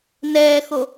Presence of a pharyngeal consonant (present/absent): absent